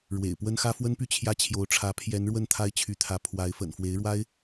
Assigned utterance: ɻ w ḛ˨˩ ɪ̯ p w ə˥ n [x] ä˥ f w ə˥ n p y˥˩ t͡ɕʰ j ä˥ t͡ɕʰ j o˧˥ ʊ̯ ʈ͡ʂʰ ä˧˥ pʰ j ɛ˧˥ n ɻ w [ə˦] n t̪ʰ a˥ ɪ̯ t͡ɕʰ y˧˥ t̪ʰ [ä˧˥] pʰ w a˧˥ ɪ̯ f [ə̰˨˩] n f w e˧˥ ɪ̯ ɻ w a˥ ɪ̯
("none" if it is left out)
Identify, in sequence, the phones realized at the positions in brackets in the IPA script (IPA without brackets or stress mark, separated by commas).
x, ə˥˩, ä˧˥, ə̰˨˩